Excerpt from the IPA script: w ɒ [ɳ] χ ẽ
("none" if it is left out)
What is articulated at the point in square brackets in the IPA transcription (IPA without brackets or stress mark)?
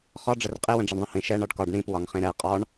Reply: ŋ